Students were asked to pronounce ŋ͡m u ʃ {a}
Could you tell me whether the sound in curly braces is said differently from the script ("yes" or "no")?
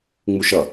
yes